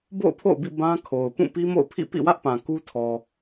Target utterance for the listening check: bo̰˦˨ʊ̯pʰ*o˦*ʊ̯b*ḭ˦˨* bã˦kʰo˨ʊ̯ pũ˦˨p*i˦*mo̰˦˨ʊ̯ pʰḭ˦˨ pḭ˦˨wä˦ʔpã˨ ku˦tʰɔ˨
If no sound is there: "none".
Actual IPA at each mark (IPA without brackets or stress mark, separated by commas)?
o̰˦˨, ḭ˦˨, i˦